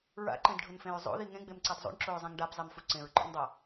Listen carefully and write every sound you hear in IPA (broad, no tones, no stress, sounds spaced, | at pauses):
ɹ a̰ ǃ ẽ d ɖʱ ʊ n f ẽ ɹ zˤ o̰ ð i ŋ ẽ ɡ͡b e m ǀ a d zˤ o̰ ɳ ǁ o ɹ zˤ ẽ ŋ ɖ a b zˤ e m f u ǀ ẽ ɹ ǃ ɔ̰ ŋ dˤ a